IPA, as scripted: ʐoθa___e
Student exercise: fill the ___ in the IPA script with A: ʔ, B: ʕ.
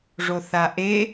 A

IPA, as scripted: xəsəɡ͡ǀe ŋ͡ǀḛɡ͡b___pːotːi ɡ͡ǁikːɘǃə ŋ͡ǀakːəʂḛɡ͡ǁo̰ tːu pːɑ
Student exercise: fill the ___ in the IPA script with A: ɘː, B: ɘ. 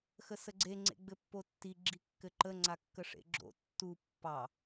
B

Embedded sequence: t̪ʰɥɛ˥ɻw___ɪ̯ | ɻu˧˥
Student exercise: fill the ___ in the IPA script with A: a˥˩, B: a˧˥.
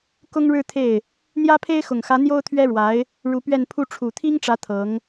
B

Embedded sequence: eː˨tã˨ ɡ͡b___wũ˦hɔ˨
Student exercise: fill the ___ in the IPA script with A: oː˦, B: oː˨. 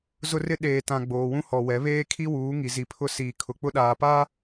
B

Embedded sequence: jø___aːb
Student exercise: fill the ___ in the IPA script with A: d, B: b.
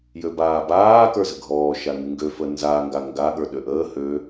B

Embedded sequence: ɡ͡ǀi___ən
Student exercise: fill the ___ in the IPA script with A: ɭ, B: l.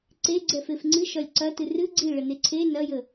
A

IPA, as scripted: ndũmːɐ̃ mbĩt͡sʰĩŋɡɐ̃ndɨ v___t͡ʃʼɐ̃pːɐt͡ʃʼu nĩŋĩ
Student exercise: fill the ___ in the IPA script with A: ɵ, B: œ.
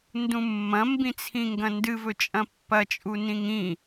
A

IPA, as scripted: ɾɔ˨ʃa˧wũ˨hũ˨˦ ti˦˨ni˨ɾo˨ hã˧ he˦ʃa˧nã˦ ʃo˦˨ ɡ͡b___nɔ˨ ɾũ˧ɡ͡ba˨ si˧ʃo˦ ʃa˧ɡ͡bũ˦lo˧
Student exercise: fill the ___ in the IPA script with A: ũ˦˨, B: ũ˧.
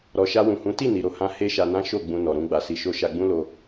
B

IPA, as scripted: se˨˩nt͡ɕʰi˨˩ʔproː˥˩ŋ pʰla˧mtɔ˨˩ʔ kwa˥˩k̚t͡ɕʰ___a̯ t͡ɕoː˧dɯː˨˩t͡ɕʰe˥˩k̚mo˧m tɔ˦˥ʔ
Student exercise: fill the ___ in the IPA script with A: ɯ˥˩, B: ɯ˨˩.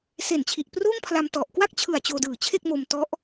B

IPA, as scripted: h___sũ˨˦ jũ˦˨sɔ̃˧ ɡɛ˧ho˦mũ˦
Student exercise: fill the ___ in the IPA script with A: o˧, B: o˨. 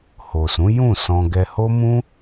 B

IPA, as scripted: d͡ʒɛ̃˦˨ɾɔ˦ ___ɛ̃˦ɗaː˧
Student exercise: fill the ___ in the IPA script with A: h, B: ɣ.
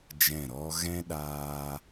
B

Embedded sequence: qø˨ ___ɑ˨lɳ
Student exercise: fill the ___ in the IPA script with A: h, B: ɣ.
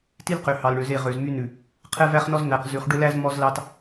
A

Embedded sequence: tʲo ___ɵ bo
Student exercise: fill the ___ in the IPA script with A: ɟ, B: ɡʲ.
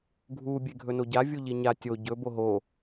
A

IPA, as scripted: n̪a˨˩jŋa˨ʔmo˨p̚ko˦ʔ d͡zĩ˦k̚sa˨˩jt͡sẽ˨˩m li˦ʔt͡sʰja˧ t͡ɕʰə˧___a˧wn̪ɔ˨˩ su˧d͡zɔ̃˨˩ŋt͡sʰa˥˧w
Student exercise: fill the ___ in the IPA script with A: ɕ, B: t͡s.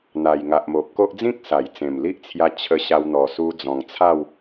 A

